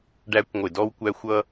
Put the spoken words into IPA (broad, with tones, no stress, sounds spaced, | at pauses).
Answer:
ɖ æ˦ kʷ ŋʷ ɪ˧˩˧ d ɔ˦ w kʷ æ˦ xʷ ʌ˦